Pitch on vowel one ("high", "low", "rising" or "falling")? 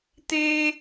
high